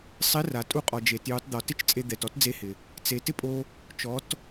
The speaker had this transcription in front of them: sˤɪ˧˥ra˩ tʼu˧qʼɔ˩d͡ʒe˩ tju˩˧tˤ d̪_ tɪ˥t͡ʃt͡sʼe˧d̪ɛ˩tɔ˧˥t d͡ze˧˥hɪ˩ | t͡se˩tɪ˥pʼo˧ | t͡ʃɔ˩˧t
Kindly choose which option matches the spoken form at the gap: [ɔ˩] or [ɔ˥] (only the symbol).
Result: ɔ˩